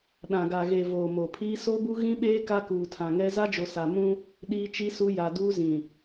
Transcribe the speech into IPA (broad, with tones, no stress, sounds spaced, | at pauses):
ɗ ã˨ ɡ a˨ ɣ e˨ v oː˨ m o˨ pʰ iː˦ s o˦ b u˦ ɣ ĩ˦ ɓ eː˦ k a˦ k uː˨ tʰ ã˨ ŋ ɛ˦ z a˦ d͡ʒ o˨ s a˨ m ũ˦ | ɗ iː˦ t͡ʃ i˦ s u˦ j a˨ d uː˦ z ĩ˨